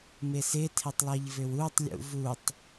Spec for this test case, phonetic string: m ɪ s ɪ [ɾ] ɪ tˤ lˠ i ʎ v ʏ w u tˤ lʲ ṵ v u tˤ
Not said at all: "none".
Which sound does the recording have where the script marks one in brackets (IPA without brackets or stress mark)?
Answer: tʰ